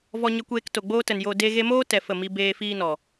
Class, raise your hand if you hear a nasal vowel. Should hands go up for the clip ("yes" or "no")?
no